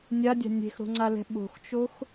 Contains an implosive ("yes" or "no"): yes